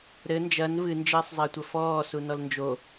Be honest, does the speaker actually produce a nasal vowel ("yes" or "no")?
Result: no